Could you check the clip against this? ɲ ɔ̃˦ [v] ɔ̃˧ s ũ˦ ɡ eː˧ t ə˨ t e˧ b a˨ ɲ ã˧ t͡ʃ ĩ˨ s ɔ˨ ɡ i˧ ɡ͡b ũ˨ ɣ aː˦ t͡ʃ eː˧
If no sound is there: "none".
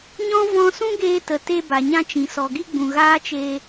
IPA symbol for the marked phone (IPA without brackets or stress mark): v